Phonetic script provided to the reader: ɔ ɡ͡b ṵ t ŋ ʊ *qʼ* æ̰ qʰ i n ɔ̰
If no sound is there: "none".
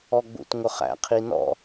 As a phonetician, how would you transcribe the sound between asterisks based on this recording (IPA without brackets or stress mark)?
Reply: χ